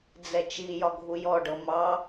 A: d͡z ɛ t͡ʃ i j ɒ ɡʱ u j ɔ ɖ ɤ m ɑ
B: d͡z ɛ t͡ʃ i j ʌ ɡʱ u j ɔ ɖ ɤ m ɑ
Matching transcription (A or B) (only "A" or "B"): A